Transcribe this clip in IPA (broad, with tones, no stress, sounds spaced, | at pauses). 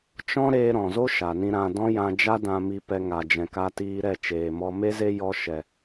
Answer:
t͡ʃ ɔ̃˦ ɾ eː˧ ɾ ɔ̃˨ z o˦ ʃ a˨ n ĩ˧ ɾ ã˧ d ɔ̃˦ j ã˧ d͡ʒ a˦ d ã˧ m i˧ p ɛ˧ ŋ a˨ d͡ʒ ɛ̃˨ k a˧ t iː˧ ɾ ɛ˦˨ t͡ʃ eː˨ m ɔ˧ m e˦ z e˦ j ɔ˧ ʃ ɛ˨